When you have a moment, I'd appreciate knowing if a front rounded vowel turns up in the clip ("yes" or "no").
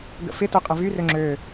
yes